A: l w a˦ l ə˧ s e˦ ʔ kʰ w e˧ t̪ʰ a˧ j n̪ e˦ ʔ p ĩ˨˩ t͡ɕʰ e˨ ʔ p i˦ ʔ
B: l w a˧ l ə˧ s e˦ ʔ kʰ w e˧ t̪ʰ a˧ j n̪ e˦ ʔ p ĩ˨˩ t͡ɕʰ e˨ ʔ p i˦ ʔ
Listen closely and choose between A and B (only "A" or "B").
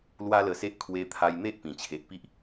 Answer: A